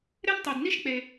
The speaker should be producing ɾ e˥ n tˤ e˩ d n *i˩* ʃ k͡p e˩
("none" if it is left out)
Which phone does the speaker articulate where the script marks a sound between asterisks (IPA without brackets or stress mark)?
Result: i˥